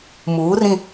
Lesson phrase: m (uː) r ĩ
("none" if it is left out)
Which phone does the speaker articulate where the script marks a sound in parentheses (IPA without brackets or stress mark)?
uː